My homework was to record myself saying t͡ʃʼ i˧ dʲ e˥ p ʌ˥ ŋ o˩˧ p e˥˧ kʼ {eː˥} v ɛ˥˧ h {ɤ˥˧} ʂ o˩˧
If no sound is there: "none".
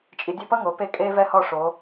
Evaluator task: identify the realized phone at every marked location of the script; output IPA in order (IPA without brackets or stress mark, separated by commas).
eː˥, ɔ˥˧